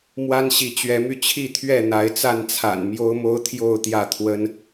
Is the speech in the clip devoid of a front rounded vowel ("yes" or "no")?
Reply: no